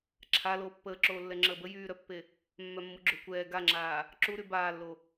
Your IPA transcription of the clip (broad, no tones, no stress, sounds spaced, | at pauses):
ǁʰ a l oː pː əː ǁ oː lː ɛ ŋ͡ǁ əː b ə j yː ɾ œ pː e | mː œ mː u ɡ͡ǁ o kʷ ɛː ɡ a ŋ͡ǁ aː | ǁ u ɾ y b aː lː o